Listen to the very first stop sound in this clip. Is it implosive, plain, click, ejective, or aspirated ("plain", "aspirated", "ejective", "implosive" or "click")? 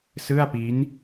plain